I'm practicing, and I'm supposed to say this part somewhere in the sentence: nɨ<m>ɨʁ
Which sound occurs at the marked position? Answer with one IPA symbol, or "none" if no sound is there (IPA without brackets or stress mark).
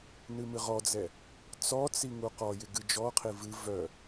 m